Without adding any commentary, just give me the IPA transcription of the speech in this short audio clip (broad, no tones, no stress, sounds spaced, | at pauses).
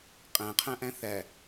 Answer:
qʼ æ̃ qʰ æ̃ ʔ æ̃ θ æ